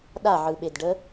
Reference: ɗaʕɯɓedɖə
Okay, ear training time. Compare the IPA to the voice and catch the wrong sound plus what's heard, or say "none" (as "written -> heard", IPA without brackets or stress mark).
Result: none